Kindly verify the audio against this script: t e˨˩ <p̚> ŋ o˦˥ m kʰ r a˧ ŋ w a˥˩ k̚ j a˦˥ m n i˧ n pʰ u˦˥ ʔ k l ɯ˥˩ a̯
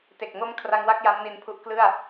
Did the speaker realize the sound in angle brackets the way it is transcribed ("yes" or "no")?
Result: no